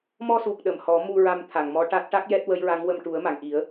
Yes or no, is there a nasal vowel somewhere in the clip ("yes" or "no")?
no